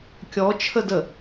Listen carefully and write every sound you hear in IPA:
kʲ ɔ t͡ʃʰ ə d ə

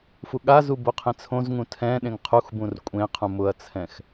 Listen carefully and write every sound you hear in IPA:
f u ɠ a z u b o qʰ ẽ t͡sʰ õ z ŋ ũ tʰ ɛ̃ ɗ ẽ ŋ qʰ u x b ũ r kʷʼ ẽ qʰ ũ m ʊ ɐ̯ t͡sʰ ɛ̃ x

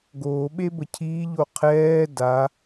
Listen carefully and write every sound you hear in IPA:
ɡ oː ɓ e b ə cʰ iː ʎ o qʰ ɛː d a

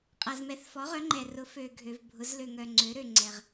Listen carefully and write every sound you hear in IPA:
qʼ a˩ z m ɛ˩˧ θ f ɔ˩˧ ʁ œ˩˧ ŋ͡ǃ ɛ˩ r ʊ˩˧ f ø˩ ɡʱ ø˩ v bʱ ʊ˩˧ z l ø˩ ŋ œ˩ ŋ͡ǀ ø˩˧ ɾ ø˩ ŋ͡ǀ ɛ˩ ʁ

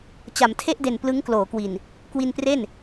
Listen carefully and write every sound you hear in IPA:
t͡ɕ a˩˦ m tʰ e˥˩ ʔ d e˨˩ n p l ɯ˦˥ ŋ k l oː˩˦ k w i˨˩ n | k w i˧ n p r e˥˩ n

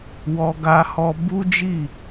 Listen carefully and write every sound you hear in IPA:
w ɔ˧ ɡ a˧ h ɔ˧ b u˦ d͡ʒ i˦˨

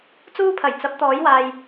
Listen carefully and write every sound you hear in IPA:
t͡s uː˥ pʰ ɐ˨˩ j t͡s ɐ˨˥ p̚ t̪ ɔː˨˥ j w aː˨ j

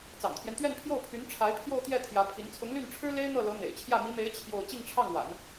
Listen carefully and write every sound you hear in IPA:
t͡s ɑ̰˨˩ ŋ t̪ʰ j ɛ˦ n t̪ ɥ ɛ˥˧ n pʰ j o˥˩ ʊ̯ pʰ y˧˥ n ʈ͡ʂʰ a˧˥ ɪ̯ pʰ j o˥˧ ʊ̯ t̪ j ɛ˥˩ t̪ʰ j ä˧˥ pʰ i˧˥ n t͡sʰ ʊ˧˥ ŋ l y˥˩ n ʈ͡ʂʰ ɻ̩˥ l e˥ ɪ̯ n̪ ɤ˥˩ l ɤ˧˥ n̪ ḛ˨˩ ɪ̯ t͡ɕʰ j ä˥˩ m i˧˥ m e˧˥ ɪ̯ t͡ɕʰ j o˥˧ ʊ̯ t͡ɕ i˥˧ ŋ ʈ͡ʂʰ ɑ˥˩ ŋ w a̰˨˩˦ n

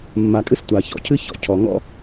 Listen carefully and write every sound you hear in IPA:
mː a˨ kʼ ɨ˦ s tʷ a˨ ç ɔ̰˨ cʰ ɨ˦ ç ɔ̰˨ cʰ ɔ˨ ŋ ɔ̰˦

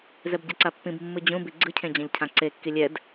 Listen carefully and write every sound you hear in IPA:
z ɛ b ɟ ɛ ǀ a pː ĩ b mː ɯ d͡ʑ ũ b i ɡ͡ǀ ɯ cʰ ẽ d͡ʑ ã ʎ cʰ ã ǀ e kː i lʲ ɛ d

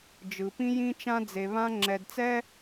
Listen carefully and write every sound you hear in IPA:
d͡ʒ ɯ˨ p ĩ˦ j ĩ˦ t͡ʃ ã˦ d͡z e˨ β ã˦ ŋ͡ǁ ɛ˨ d t͡s ɛ˦

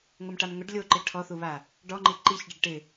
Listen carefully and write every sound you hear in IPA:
ŋ ʊ m ʈ a m ŋ ʊ ɖ lʲ o ǃ i ʈʰ ɔ θ u β a | ɖ ɔ ŋ͡ǃ i ǃ i ç ɖ ɪ ɖ ʈ ɪ

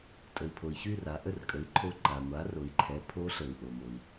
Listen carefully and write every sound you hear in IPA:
tʼ ə˩ i̯ pʰ o˩ i̯ ç y˥˨ r a˩˧ ʔ ə˥˨ r kʼ ə˩˥ i̯ ǃʰ o˧˥ ǃ a˩ ŋʷ a˩˥ r o˩˧ i̯ ǃʰ ɛ˩˥ pʰ o˧˥ ɬ ə˩ u̯ ʔ o˩ m o˩ i̯

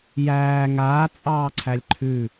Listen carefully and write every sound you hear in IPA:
j æː ŋ aː t͡sʼ ɑː ǀʰ æ lʲ ǃʰ ʉ

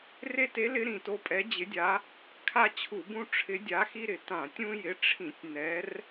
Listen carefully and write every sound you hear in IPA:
r e˦ t e˨˦ l ɪ˨˦ ɾ ĩ˧˩˧ t o˨˦ pʼ ɛ˨˦ d͡ʑ ɪ˨˦ dʲ a˨˦ | kʰ a˦ t͡ɕʰ u˧˩˧ b ũ˦ ʈ͡ʂʰ ɪ˨˦ dʲ a˨˦ x i˦ ɾ ɪ˧˩˧ t ã˧˩˧ tʲ ũ˦ j ɪ˨˦ ʈ͡ʂʰ ĩ˧˩˧ tʲ n ɛ˨˦ r

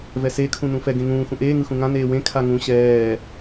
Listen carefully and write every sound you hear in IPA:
v ɛ s e kʰ ũ n ũ f ɛ ɡ ẽ ŋ ũː x ũ ʔ eː ŋ ɯ x ũ ŋ ã n eː w ẽ kʰ a ŋ ũ ɕ ɛː

